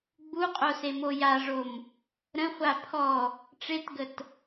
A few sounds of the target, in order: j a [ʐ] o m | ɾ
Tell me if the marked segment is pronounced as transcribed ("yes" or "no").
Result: yes